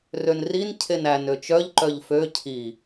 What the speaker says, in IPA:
r ø n r i n cʰ e n æ n ø t͡ʃ œ ʎ ǃ œ ʎ f ø cʰ i

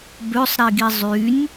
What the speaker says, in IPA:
b ø sˤ ɾ i ɡ i zˤ y nʲ

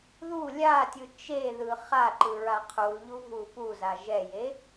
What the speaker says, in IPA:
ð u lʲ a tʲ ɯ t͡ʃ e ð ɯ χ a ǃ ɯ ɹ a qʰ u l ʎ u v u p u z a ʒ ɛ j e

